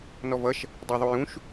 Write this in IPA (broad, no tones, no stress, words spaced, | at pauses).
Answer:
nɔvʌʃ | dˤæðˤujũʃ